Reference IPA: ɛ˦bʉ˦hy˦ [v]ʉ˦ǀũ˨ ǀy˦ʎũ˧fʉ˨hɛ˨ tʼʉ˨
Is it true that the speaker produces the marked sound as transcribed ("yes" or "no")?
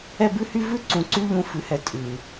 yes